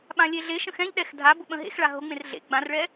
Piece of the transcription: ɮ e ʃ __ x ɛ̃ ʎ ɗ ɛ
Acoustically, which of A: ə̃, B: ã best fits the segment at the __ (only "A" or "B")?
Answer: A